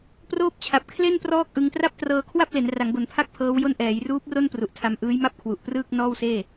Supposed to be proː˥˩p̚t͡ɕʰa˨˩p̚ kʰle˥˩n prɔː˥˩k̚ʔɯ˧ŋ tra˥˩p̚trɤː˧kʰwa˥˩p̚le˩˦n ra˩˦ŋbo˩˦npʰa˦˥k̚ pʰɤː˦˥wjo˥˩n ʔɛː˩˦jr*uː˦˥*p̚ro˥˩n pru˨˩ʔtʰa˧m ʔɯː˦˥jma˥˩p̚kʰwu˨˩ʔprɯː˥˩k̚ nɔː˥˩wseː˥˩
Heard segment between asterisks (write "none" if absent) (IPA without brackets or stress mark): uː˦˥